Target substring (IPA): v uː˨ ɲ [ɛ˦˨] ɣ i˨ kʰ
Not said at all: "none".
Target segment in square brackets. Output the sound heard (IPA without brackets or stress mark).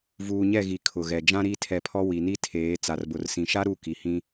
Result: ɛ˦˨